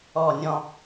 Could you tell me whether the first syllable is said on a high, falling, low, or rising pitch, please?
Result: falling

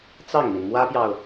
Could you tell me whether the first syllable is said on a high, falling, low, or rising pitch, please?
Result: falling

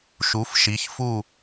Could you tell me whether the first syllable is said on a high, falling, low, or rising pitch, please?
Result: rising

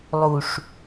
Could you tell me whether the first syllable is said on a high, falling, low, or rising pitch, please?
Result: low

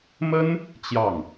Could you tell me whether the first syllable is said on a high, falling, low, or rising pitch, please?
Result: high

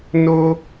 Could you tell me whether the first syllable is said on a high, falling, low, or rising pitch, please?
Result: high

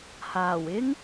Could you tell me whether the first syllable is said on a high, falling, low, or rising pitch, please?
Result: low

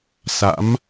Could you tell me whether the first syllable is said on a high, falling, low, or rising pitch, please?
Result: rising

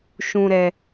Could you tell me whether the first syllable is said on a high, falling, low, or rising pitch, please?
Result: low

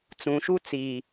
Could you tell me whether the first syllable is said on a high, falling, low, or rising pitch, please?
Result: low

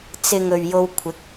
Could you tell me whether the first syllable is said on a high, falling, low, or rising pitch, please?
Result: low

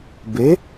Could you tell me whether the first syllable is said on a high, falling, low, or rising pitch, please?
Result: rising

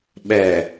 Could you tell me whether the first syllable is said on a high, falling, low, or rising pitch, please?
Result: low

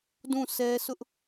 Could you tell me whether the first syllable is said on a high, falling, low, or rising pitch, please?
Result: falling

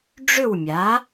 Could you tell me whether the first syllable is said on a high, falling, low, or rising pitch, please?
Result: falling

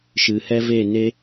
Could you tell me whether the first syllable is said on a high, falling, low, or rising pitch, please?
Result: low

